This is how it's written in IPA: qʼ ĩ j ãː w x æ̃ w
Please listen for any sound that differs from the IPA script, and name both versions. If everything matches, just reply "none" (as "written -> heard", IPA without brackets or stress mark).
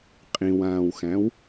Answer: j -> w